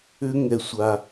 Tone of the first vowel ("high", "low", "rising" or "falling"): high